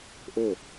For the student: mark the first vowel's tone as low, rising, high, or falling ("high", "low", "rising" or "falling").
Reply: falling